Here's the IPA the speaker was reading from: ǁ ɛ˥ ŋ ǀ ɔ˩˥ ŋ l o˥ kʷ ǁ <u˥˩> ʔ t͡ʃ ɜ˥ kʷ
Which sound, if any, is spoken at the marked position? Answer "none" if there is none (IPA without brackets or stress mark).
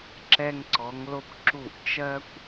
u˥˩